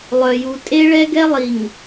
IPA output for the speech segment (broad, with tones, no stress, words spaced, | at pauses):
lˠœ˨ju˨ tʼe˦ɭɛ˦ɡɛ˦ lˠi˨ŋ